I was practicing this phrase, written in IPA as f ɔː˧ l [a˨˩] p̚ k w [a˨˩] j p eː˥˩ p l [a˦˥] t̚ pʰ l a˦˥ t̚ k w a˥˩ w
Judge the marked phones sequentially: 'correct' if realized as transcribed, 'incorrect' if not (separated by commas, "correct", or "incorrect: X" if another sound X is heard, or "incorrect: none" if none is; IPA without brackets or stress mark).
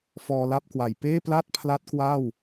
incorrect: a˥˩, correct, incorrect: a˥˩